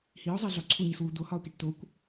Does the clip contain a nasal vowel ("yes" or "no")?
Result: no